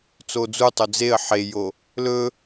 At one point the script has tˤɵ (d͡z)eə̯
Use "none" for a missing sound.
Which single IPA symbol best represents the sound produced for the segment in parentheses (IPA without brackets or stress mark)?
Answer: d͡z